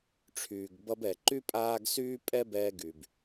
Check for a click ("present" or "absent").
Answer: present